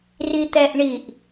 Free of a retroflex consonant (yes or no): no